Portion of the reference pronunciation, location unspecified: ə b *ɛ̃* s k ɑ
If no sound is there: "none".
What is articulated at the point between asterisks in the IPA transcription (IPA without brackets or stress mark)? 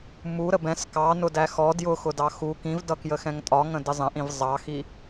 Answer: ɛ̃